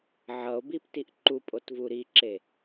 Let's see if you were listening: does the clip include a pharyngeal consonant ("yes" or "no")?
yes